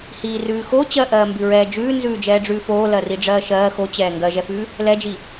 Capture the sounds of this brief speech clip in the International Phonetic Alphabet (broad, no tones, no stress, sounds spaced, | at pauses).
h iː r ʉː x o t͡ɕ ɜ ʔ ɜː m b ʉ ɹ ɛː d͡ʒ ʉː n z ʉː d͡ʒ ɛː ɖ͡ʐ ʉː f oː l ɜ r i ɖ͡ʐ ɜː ʃ ɜː x o t͡ɕ ɛː ŋ ɡ ɜ ʒ ɛ f ʉː | l ɛ d͡ʒ i